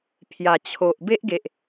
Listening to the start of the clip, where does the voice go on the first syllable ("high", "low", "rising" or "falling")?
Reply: low